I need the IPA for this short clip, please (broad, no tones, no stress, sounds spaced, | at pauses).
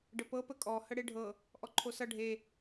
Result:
ɖ ə p ɤ p ə kʼ ɔ h ə ɽ e ɖʱ ɤ | ʔ ɔ ǃʰ o s ʌ ɖʱ e